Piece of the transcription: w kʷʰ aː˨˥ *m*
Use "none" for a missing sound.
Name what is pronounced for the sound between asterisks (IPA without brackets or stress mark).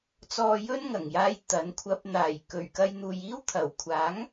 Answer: ŋ